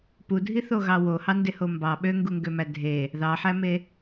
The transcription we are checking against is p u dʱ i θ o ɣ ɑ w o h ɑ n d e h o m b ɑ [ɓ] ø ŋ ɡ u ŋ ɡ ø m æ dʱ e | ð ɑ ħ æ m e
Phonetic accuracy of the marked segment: correct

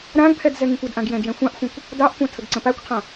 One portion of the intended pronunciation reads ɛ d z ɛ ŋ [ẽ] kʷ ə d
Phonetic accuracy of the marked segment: incorrect: ĩ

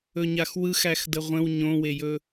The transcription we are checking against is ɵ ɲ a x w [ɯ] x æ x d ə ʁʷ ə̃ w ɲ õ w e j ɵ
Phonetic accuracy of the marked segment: correct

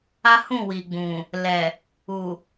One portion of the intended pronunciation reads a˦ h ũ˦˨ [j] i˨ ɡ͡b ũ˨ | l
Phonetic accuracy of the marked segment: incorrect: w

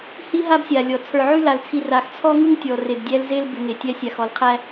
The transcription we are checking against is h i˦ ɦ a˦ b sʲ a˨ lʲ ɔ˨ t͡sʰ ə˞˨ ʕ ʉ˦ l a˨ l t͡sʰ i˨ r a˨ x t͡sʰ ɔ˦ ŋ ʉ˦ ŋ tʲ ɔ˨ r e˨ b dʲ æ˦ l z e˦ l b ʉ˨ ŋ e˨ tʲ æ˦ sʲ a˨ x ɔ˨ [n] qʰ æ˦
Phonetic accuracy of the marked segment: incorrect: l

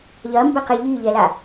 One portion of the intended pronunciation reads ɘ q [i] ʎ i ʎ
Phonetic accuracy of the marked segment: incorrect: e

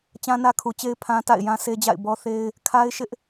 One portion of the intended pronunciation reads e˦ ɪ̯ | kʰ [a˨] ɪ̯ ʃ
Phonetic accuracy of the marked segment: incorrect: a˦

